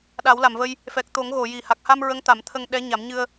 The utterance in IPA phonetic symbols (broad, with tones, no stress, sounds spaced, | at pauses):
ɗ a˨˩˦ w l a˨˩˨ m v ə˧ j | f ɛ˨˩ k̚ t̪ o˨˩˦ ŋ ɣ o˨˩˨ j i˨˩ h a˨˩ k̚ h a˧ m ɹ ə˧˥ ŋ t̪ a˨˩˦ m t̪ʰ ə˧ ŋ ɗ ɛ˧˥ ɲ a˨˩˦ m ɲ ɨ˧ ə̯